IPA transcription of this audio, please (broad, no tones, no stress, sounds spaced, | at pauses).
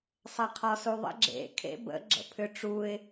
sˤ ɛ qʰ ɔ s u ðˤ ə̰ ɡ͡ǁ ḛ kʰ ḛ b ə̰ ɡ͡ǁ ə̰ pʰ ʏ ʈ͡ʂ u ɪ̯